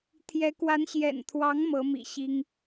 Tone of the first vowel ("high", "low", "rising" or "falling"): rising